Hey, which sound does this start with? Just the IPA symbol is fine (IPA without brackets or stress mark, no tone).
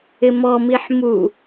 ɪ